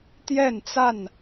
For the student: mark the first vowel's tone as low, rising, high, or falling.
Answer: falling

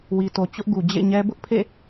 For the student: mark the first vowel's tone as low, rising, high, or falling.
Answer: low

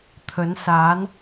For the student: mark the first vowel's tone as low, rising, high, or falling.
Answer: rising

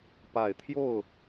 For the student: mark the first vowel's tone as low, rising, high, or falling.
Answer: low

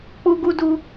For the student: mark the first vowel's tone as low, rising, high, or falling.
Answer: high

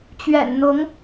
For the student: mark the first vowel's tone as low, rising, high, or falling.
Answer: low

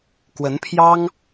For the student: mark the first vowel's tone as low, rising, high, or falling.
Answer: rising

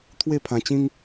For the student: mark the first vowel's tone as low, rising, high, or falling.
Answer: falling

